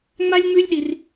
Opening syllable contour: high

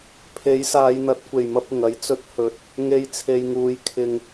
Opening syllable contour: rising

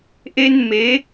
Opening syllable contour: high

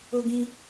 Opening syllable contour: high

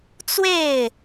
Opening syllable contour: falling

